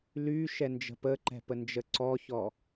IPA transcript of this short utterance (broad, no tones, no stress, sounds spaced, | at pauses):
l y ʃ ɛ n d͡ʒ ə̤ p ə ǃ ɛ̤ p ə n d͡ʒ ə ǀ ɔ ç ɔ